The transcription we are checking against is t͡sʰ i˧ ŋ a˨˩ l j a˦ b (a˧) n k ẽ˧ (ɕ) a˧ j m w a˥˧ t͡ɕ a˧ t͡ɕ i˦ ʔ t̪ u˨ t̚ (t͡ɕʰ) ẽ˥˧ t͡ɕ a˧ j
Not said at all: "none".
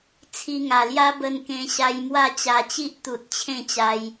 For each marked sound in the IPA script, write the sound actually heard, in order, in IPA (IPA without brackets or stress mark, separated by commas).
ə˧, ɕ, t͡ɕʰ